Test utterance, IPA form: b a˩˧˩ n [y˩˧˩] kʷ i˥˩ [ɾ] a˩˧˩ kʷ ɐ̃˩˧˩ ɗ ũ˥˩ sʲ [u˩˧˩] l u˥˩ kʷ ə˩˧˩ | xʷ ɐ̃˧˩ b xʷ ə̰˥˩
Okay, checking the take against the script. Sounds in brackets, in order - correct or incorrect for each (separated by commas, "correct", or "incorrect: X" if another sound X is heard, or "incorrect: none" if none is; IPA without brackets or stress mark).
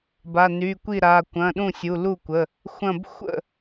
correct, correct, correct